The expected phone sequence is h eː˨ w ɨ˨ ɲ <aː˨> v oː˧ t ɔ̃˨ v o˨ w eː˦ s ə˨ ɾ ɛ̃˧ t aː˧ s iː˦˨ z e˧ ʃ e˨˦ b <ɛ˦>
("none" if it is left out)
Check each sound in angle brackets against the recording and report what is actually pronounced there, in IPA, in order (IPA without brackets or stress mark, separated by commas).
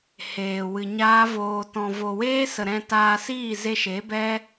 aː˦, ɛ˦